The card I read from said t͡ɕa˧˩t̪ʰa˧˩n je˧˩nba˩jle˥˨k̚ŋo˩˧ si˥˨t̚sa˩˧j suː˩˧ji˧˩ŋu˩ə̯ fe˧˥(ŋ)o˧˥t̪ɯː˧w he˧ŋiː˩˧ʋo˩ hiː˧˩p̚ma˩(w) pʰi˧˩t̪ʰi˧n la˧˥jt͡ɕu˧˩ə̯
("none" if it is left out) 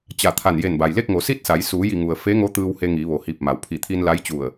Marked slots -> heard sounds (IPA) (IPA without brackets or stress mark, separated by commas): ŋ, w